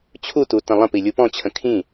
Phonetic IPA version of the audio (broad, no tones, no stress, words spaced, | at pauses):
t͡ɕʰutu tə̃lˠə̃pi lʲupɔ̃t͡ɕʰə̃ kʰĩ